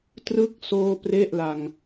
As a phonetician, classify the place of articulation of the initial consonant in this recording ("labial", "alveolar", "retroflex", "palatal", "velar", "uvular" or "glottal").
alveolar